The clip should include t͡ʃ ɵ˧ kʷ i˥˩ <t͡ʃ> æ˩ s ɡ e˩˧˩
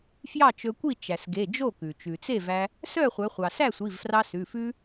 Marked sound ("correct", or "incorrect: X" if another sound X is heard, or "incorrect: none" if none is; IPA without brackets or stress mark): correct